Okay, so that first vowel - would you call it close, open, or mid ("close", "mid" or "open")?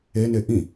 mid